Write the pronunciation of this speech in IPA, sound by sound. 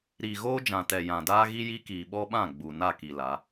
ɾ iː˨ ɣ oː˦ d͡ʒ ã˨ t ɛ˨ j ã˨ d aː˦ ɣ i˦ j i˦ k iː˨ ɓ ɔ˦ ɓ ã˦˨ ɡ͡b u˨ n a˦˨ k i˨ l a˨˦

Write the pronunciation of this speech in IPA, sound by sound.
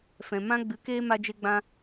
f ɛ̃˨ m ã˦ ɡ͡b ɨ˨˦ k eː˦ m a˦ d͡ʒ e˦ ɡ͡b ã˦

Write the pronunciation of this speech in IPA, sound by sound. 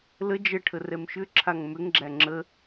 l ə d͡ʒ ə ʈʰ ə r ɛ m ʃ ʏ ǁʰ a ŋ m ʏ ŋ ɡ͡ǁ æ ŋ͡ǁ ə

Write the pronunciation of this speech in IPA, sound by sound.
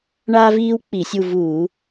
ɳ aː˥ v iː˥ w k͡p i˧˩˧ sʲ u˦˨ v uː˧˩˧

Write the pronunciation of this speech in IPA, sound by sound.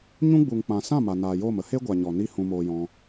ɲ ũ˦ ɡ͡b u˨ ŋ k͡p ã˨ s ã˦˨ m a˨ n aː˨ j oː˦˨ m ə˦ h e˦ ɡʷ a˨ ɲ ɔ˨ n i˦ h ũ˧ m oː˧ j ɔ̃˧

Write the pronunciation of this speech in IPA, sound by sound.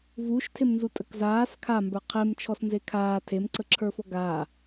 v uː ʃ tʰ e m n z u tʼ ə k z aː s kʰ a m b ə˞ qʰ e m t͡ʃʰ ɔ s n z e kʰ aː tʰ e m ǀ ə ǁʰ ə˞ f ɔ ɡ aː

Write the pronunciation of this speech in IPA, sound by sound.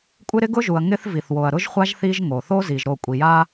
kʷʼ ɪ˦ ɾ ɪ˦ ɡ ʊ˦ ʒ u˨ ɐ̯ ŋ ɪ˦ θ v i˨ θ w o˨ ɐ̯ ɾ ʊ˦ ʒ χʷ a˦ ʒ θ i˦ ʒ ŋ o˨ θ o˦ z i˨ ʒ ɾ o˦˨ kʷʼ i˨ j a˦

